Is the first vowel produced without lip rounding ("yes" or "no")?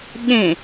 yes